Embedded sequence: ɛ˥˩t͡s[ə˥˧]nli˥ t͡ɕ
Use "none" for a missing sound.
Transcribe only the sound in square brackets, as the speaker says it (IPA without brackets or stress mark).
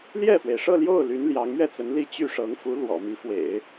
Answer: ə˧˥